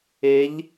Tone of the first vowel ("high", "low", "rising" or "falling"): rising